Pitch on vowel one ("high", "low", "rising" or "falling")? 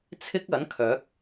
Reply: high